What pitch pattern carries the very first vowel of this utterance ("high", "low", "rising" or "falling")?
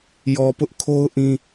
low